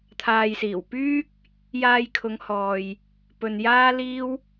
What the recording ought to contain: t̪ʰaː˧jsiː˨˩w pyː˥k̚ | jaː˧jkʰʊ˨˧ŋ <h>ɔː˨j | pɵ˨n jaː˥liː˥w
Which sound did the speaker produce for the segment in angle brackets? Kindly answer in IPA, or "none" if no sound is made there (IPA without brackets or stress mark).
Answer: h